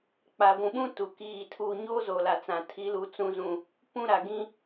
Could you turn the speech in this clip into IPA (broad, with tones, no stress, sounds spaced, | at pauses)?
k͡p a˨ ɡʷ ũ˨ ɓ ũ˦ t u˨ k iː˦˨ tʰ u˨ ɲ oː˦ z oː˨ l a˨ t͡s ã˨ tʰ i˨˦ l u˨ t͡s ũ˨ z ũ˨ | p ũ˦ ɾ a˨ ɡ ĩ˦